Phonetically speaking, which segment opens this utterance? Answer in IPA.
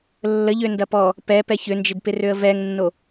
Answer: lː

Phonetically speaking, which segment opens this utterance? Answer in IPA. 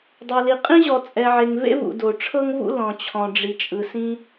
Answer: dˤ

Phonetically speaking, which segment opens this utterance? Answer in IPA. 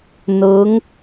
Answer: n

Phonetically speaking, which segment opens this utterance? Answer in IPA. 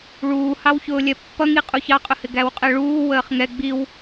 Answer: ɭ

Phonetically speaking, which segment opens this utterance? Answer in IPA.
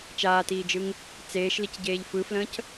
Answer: t͡ʃ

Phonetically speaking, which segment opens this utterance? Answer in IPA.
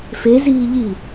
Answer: f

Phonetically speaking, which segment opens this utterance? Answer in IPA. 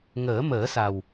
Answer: ŋ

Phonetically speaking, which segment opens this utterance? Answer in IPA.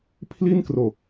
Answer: pʰ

